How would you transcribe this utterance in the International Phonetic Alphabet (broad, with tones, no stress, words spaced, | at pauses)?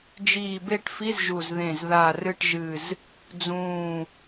d͡ʒiː˧˩be˥˩ʈfi˧˥˧z ʒu˧˩zðẽ˧˩z ða˧˩rɨ˥˩ʈʒɨ˧˩z | d͡zũː˧˩